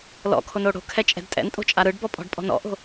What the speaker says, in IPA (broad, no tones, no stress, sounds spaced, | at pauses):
l ɔ̰ kʰ o n o ɽ o̤ kʰ ɛ t͡ʃʼ ɛ̤ d tʼ ɛ̰ n tʼ o̤ t͡ʃʼ a ɾ ɯ ɖ b ɔ pʼ ɔ̤ ɖ pʼ ɔ̤ n ɔ̰ ʔ o̤